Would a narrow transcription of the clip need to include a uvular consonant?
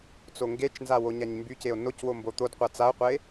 yes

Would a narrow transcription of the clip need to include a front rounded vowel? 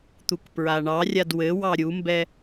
no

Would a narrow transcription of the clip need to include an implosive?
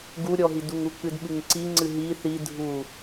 yes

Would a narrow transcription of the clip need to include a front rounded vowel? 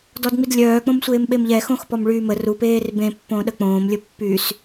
yes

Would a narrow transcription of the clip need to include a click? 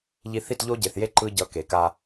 yes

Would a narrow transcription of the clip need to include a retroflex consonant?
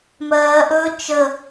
no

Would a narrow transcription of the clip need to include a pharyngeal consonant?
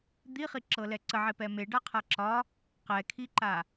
yes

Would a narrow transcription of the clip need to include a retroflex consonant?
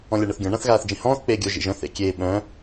yes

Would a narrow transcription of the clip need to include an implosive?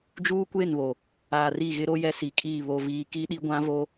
yes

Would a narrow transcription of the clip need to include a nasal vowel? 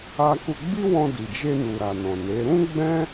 yes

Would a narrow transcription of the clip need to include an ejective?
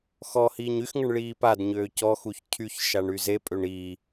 yes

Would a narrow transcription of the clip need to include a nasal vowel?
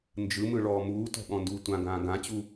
yes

